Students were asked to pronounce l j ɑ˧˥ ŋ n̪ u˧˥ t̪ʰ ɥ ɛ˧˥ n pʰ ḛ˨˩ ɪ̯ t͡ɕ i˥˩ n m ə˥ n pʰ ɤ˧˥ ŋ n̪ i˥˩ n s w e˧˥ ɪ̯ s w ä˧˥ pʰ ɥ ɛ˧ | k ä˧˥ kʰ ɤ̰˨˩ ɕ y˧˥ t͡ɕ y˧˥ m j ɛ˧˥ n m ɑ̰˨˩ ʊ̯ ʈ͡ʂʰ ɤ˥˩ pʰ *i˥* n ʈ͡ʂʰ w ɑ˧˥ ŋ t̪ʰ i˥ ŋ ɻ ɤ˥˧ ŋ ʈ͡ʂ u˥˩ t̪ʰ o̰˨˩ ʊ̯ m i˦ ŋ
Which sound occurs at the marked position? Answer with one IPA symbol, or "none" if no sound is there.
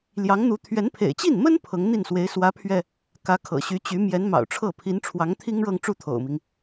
i˧˥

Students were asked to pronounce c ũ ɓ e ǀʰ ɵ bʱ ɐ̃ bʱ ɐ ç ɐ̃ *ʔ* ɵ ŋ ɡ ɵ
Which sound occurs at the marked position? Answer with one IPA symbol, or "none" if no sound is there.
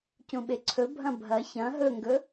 ɦ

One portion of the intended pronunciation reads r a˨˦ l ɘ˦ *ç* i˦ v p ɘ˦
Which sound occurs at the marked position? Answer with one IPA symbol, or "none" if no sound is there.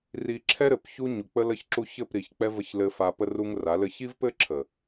ç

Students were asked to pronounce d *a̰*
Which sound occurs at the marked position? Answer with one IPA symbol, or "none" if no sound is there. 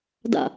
a̰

